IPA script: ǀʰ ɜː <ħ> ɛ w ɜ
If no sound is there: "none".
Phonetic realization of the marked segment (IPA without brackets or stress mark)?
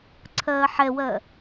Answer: ħ